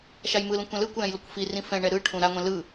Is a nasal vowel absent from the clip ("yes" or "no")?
no